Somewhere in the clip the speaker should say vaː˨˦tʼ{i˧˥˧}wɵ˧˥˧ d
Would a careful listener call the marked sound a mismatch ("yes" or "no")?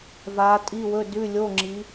no